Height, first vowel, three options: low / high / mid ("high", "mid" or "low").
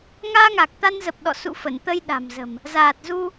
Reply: low